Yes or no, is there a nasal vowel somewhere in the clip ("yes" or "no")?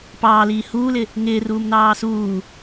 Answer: no